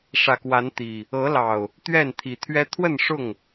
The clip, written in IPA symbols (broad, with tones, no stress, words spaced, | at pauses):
ʂä˨˩kwa˨˦nt̪i˨˩ | ɤ˨˦lɑ˨˩ʊ̯ | t̪ɥɛ˥˨nt̪ʰi˨˦t̪ʰɥɛ˦ t̪ʰwə˥˨nʂʊ˥˨ŋ